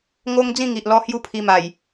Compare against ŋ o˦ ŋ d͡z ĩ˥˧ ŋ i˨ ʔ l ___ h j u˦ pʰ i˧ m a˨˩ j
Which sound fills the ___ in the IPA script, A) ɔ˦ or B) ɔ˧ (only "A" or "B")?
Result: B